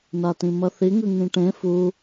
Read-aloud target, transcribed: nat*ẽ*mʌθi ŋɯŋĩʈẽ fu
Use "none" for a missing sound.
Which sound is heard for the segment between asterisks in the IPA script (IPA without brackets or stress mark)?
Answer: ĩ